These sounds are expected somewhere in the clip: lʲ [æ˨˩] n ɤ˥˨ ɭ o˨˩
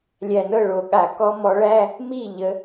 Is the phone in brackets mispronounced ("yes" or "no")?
no